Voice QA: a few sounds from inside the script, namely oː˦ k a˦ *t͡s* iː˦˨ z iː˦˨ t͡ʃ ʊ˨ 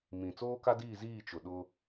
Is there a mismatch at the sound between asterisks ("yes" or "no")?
yes